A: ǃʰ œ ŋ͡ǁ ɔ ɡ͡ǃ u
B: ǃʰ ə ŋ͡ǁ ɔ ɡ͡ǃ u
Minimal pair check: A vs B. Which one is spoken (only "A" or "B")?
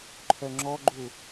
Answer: A